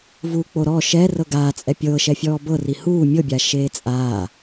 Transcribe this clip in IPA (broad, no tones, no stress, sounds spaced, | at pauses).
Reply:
v uː k͡p o ɾ ɔ ʃ ɛ r ɤ ɡ aː t͡sʼ ɛ pʲ ɤː ʃ ɛ fʲ ɔː b ɤ r i h uː mʲ ɤ bʲ a ʃ eː t͡sʼ aː